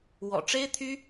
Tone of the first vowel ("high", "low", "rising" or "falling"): low